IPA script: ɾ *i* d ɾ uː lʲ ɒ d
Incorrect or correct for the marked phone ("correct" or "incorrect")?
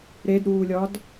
incorrect